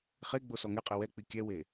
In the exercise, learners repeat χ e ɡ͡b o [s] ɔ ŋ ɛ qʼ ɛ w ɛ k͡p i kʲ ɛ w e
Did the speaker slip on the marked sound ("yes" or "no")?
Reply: no